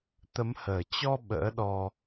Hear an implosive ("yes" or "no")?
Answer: yes